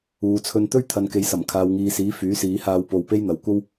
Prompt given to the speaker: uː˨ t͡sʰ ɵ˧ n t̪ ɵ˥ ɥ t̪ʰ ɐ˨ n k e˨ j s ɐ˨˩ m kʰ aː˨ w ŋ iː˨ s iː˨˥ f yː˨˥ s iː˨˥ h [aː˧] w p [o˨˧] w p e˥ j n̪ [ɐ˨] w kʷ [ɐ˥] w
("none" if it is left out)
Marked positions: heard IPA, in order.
aː˧, o˧, ɐ˨, ɐ˥

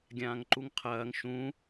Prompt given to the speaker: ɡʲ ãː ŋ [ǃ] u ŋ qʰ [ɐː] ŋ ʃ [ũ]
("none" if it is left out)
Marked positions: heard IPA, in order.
ǃ, ɐː, ũ

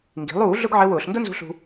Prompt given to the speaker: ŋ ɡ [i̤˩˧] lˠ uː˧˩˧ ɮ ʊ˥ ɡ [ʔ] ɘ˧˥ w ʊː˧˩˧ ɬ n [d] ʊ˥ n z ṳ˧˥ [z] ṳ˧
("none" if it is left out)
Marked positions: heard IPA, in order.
i̤˩˧, ʕ, d, ɬ

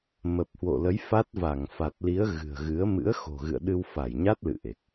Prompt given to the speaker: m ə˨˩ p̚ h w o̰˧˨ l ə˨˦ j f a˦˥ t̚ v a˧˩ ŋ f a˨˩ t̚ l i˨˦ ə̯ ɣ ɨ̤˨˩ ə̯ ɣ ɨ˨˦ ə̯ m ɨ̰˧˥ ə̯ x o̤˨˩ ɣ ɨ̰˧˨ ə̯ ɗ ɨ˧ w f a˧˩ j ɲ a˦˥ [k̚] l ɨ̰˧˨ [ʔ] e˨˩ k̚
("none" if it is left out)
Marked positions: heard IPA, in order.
t̚, ʔ

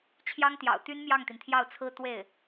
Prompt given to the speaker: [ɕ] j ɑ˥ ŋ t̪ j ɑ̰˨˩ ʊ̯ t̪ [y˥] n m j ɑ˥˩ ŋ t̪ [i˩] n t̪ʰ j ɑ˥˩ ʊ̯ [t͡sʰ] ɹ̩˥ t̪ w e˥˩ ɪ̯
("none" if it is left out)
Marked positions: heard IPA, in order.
t͡ɕʰ, y˥, i˩, t͡sʰ

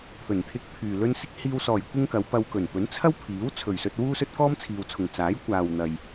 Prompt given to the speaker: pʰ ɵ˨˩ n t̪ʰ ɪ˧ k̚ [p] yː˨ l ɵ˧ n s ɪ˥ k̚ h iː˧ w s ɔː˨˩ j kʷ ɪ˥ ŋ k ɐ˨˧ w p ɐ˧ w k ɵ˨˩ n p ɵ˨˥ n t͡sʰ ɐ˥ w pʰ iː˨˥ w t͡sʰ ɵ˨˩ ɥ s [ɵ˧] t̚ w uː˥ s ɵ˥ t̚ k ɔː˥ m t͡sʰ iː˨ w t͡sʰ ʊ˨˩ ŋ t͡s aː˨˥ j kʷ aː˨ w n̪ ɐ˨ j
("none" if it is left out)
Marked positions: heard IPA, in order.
pʰ, ɵ˧

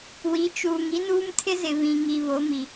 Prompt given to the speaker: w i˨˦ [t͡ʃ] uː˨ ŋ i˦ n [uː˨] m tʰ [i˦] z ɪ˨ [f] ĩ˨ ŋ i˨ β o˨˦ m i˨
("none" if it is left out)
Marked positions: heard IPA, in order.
t͡ʃ, uː˦, ɪ˦, β

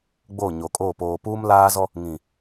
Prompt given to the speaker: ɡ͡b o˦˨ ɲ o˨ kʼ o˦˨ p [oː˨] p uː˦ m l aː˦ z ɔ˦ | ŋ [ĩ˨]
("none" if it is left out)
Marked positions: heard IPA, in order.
oː˨, ĩ˨

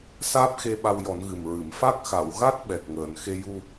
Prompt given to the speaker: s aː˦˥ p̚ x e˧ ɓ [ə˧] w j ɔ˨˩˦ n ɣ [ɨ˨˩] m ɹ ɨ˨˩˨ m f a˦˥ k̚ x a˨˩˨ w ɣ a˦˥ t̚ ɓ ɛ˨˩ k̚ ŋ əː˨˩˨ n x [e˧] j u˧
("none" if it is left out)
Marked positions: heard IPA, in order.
a˧, ɨ˨˩, e˧

